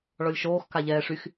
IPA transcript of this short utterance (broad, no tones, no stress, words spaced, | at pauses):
ɭɔlʲʃoːx kaʎɛːʂyx